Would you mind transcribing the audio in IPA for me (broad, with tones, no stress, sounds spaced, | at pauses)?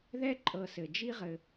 ð ɛ˦ ǃʼ ɤ˨ s ɘ˩ d͡ʒ i˦ ʁ ɘ˨